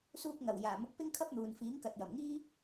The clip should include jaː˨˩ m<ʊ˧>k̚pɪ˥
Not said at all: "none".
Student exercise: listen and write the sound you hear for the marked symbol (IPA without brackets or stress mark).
ʊ˧